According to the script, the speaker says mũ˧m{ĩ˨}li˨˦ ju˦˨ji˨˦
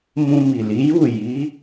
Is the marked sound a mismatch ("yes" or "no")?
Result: yes